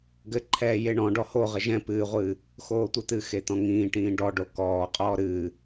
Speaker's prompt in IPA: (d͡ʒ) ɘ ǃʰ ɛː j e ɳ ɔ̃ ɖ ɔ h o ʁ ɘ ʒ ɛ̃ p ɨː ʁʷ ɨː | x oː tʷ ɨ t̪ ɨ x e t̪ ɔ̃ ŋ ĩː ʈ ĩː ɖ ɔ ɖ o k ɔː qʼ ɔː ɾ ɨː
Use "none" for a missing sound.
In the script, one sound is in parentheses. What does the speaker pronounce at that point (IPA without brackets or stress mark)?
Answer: ɡ